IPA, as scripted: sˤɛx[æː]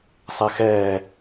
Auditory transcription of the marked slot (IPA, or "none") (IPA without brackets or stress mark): ɛː